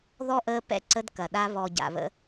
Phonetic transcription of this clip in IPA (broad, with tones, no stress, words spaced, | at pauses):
ðɔ˦ʔəː˧ pɛ̰˦ǀə˧d kɐ˨ɗa˧ βɔ˨ɟa̰˨βə̰˧